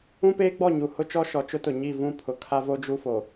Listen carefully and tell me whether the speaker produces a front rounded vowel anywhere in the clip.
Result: no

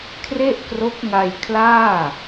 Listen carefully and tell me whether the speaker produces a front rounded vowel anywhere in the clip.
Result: no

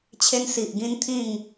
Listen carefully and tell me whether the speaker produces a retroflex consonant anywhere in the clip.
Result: no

